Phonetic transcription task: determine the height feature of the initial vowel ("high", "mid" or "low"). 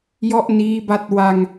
mid